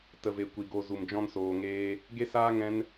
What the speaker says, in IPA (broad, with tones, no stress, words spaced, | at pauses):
tə˨ve˨ kʷi˨ɡo˧ zu˨md͡ʒɔ̃˧nsoː˨ŋeː˧ | ɡe˦saː˦ ŋɛ̃˦n